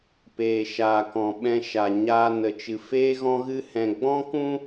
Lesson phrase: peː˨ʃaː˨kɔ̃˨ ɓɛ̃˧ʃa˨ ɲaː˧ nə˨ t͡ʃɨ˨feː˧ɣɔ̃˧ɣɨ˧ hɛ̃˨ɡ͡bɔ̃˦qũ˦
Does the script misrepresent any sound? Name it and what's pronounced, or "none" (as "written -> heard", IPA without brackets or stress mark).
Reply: q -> k